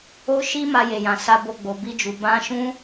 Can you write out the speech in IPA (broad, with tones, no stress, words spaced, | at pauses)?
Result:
o˦ʃi˦ ma˧je˨jã˨ sa˧bo˧ɡ͡bo˨ bi˧d͡ʒu˨ bã˧ʃũ˦